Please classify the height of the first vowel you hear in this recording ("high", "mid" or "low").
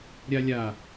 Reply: low